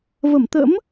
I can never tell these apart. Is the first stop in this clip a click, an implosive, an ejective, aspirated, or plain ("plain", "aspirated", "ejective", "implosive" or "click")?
plain